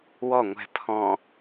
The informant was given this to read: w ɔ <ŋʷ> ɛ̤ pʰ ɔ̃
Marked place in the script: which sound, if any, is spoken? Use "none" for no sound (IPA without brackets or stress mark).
ŋʷ